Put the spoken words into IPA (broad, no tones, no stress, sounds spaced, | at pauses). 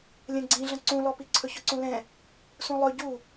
lʲ ɛ̃ ɡ͡ǀ ĩ ɮ ə̃ ǀ ũ l ɔ p i ǀʰ ɵ ç ɵ ǀ ũ l ɛ̃ | s ũ lˠ ɵ ɟ u